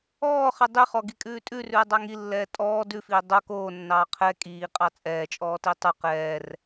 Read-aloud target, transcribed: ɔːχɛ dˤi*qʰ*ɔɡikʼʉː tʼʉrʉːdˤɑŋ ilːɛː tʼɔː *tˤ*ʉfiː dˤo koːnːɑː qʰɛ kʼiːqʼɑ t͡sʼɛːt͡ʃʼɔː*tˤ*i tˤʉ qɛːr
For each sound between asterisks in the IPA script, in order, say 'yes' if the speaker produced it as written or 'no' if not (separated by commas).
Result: no, no, no